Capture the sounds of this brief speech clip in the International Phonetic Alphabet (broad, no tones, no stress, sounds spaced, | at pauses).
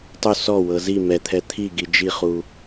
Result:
tˤ u s ɔ w ɤ z i m ɛ t̪ʰ ɛ t̪ʰ i ɡ i d͡ʒ i χ u